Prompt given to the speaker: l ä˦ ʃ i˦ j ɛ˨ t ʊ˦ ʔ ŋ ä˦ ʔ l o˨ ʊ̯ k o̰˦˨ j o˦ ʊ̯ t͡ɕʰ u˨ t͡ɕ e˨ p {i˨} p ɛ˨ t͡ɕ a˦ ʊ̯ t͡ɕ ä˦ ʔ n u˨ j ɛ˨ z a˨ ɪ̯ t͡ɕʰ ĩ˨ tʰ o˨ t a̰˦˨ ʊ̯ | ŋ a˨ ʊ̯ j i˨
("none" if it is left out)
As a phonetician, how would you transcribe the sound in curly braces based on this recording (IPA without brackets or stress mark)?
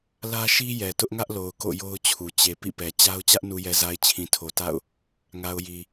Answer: ḭ˦˨